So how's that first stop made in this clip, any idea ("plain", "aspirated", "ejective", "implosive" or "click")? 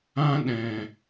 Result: implosive